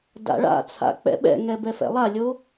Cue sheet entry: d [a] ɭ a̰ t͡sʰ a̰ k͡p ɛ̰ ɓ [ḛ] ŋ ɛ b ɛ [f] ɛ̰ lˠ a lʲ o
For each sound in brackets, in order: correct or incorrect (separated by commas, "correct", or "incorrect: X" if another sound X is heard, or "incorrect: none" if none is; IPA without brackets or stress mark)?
incorrect: a̰, incorrect: ɛ̰, correct